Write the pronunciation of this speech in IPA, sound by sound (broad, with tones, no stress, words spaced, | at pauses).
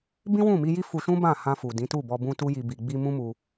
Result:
bĩ˦wũ˦˨mi˧ji˦ fu˧ʃũ˦ bã˦˨hã˧fu˨ dĩ˨˦tu˦˨bɔ˧ bũ˦tu˦ji˧ bi˨ɡ͡bi˧ mũ˦mu˧